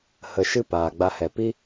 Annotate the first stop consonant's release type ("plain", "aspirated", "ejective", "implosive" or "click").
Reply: plain